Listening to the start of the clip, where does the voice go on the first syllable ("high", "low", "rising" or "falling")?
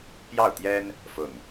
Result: falling